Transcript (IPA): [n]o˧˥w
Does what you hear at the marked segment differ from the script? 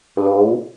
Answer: yes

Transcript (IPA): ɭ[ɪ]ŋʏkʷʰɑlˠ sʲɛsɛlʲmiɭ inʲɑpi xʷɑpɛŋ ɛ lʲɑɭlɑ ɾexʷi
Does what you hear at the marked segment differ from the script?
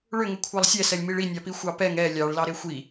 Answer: yes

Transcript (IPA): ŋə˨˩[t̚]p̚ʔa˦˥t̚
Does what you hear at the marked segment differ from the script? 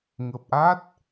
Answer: yes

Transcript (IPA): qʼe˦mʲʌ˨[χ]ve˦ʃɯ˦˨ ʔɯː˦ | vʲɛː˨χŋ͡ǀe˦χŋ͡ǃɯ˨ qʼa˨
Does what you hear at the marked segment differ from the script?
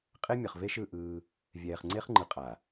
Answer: no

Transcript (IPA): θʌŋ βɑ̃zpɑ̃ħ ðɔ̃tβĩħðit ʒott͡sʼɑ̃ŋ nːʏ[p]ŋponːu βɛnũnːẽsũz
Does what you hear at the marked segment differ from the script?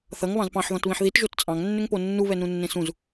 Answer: yes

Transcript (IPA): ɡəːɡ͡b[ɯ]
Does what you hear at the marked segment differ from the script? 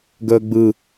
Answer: no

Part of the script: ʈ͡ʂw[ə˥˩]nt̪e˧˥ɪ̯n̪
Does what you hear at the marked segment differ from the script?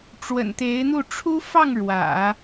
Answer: yes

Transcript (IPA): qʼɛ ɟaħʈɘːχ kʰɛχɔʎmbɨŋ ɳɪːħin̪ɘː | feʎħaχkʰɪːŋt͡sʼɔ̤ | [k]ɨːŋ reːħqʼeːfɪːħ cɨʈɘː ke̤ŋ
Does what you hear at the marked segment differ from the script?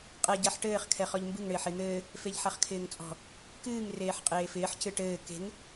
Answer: no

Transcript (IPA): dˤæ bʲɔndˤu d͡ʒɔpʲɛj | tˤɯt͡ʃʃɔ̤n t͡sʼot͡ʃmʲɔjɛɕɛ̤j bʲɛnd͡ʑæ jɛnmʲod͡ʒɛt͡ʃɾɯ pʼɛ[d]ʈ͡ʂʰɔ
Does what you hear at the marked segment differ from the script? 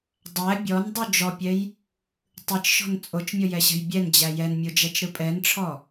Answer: yes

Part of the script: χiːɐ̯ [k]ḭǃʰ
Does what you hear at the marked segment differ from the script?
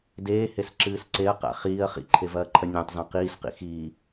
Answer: yes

